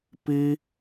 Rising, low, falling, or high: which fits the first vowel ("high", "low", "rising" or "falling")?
high